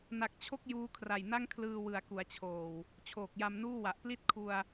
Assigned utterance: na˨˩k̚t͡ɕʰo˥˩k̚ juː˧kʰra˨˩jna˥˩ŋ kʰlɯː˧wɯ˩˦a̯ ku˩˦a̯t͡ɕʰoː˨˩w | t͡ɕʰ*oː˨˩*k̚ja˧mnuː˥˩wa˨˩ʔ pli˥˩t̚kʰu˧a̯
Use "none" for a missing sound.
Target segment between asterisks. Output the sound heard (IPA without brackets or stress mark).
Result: oː˨˩